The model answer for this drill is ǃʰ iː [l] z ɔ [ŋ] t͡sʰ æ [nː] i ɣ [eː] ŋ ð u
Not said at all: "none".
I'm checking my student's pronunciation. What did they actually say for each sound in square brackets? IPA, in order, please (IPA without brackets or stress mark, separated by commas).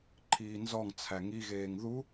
n, ŋ, ŋ, eː